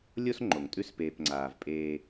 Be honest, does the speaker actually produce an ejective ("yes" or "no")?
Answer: yes